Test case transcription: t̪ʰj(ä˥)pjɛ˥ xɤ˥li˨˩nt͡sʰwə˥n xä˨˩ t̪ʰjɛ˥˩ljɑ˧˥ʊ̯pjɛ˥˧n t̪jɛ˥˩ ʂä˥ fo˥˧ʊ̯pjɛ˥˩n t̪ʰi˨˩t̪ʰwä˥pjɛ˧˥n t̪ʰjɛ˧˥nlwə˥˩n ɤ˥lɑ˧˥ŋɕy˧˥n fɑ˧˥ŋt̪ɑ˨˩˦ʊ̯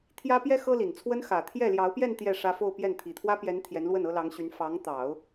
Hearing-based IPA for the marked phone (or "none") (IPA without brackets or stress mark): ä˥